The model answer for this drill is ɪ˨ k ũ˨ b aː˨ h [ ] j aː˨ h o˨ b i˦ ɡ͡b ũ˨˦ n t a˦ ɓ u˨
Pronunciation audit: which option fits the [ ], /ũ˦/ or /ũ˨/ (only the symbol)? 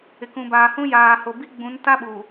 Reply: ũ˦